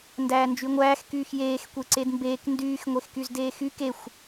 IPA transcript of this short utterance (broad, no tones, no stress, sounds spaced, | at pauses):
n d æː n d͡ʒ y ŋʷ æː x k yː x j eː x kʷ e ǀ e d m b eː k n d yː x ŋʷ e x k y z d eː x y k e xʷ